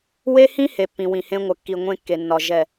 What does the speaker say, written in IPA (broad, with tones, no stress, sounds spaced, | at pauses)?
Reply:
w e˦ h ĩ˦ h e˨ pː ĩ˨ w ĩ˨ h ẽ˦ ŋʷ ə˨ kː i˨ ŋʷ ẽ˦ kː e˨ nː ɒ˨ ʒ ɛ˦˨